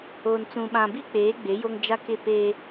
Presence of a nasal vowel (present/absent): present